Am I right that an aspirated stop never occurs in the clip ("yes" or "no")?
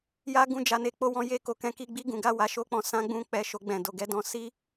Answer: yes